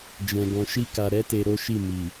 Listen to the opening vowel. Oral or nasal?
nasal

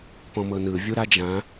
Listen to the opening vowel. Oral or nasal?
nasal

